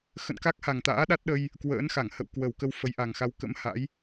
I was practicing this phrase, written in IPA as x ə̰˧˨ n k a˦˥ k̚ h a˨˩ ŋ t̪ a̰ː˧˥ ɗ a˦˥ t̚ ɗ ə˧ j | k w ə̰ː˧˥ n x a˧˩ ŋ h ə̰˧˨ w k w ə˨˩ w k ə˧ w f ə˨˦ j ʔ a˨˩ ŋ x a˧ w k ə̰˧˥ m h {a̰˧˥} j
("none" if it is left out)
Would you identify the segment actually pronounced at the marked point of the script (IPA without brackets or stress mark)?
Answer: a̰˧˥